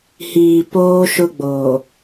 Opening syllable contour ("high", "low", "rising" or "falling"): low